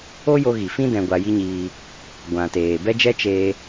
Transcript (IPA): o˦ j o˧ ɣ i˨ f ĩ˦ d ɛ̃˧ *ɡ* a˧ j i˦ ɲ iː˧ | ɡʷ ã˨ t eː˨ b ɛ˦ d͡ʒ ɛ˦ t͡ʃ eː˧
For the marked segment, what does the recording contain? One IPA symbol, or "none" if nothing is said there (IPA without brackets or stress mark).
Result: ɡʷ